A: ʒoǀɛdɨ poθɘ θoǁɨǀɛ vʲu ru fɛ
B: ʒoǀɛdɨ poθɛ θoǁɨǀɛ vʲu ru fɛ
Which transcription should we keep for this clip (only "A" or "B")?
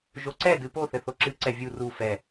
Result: A